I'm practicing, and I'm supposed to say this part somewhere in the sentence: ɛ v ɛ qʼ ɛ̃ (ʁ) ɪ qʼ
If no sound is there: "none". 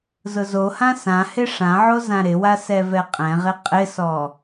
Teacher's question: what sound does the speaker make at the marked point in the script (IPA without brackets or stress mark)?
ʁ